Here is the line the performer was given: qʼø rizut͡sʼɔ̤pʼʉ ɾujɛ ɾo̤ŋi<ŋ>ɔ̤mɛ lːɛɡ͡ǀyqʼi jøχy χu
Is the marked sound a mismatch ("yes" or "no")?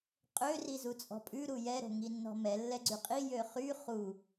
yes